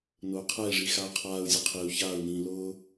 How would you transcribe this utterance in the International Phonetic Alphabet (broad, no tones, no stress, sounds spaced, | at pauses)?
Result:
n ʊː qʰ ɛ i̯ ʐ i x aː qʰ aː u̯ zʲ ʊ qʰ i u̯ ç aː u̯ n ĩː l ʊː